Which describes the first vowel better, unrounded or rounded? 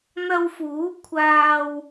unrounded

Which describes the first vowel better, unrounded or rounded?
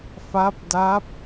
unrounded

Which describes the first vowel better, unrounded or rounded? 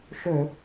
rounded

